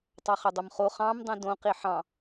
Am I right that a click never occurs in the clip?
yes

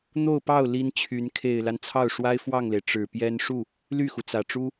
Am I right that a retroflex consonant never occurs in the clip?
no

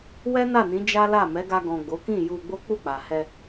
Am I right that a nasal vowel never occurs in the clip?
no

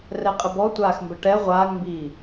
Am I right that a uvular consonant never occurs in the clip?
no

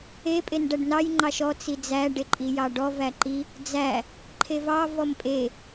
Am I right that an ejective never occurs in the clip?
no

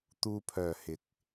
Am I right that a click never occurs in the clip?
yes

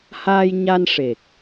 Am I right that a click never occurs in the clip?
yes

